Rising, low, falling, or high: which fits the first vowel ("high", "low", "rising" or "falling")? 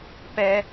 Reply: high